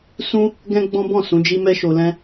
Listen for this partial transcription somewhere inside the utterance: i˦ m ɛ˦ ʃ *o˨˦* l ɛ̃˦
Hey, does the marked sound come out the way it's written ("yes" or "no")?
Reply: no